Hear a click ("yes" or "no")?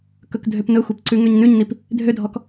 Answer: yes